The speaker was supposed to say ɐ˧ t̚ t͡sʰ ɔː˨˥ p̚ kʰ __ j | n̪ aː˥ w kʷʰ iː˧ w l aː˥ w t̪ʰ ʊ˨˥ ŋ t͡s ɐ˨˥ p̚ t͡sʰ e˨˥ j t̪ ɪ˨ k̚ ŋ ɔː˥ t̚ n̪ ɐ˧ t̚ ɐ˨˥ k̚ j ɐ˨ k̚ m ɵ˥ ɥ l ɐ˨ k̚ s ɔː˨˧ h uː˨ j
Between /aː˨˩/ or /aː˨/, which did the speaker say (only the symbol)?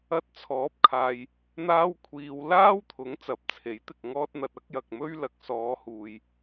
aː˨